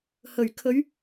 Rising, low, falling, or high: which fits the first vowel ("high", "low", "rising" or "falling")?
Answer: low